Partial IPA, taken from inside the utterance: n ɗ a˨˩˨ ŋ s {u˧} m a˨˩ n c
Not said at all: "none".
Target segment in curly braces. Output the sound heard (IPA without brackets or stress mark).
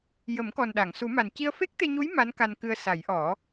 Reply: u˨˩˦